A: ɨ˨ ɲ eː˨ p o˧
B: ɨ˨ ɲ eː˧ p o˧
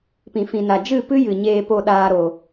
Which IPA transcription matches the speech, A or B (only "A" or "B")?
B